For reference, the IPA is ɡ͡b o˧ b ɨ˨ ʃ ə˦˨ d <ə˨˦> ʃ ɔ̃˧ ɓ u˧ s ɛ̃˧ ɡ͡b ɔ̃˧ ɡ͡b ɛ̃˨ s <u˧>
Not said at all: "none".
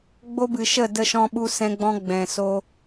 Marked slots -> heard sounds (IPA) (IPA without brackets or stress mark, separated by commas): ə˧, o˧